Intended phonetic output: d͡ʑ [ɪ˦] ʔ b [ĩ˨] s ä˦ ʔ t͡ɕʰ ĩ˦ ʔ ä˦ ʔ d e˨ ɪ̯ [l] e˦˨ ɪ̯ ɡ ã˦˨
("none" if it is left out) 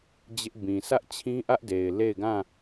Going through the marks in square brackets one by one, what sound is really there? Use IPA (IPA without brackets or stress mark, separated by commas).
ɪ˦, ĩ˨, l